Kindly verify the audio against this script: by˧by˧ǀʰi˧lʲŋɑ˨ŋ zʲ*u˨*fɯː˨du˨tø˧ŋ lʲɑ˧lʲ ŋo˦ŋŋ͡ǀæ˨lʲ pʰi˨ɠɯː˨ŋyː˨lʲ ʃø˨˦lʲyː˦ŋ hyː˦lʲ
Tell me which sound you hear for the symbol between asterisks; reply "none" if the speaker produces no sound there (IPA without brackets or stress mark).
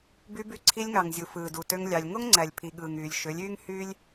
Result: u˨